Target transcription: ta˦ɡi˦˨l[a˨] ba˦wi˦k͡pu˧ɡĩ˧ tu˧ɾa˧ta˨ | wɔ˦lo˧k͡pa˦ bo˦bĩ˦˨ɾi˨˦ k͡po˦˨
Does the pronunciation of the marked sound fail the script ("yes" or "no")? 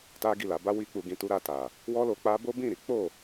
yes